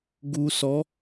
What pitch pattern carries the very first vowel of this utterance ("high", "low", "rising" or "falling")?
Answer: low